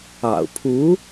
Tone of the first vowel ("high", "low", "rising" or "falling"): low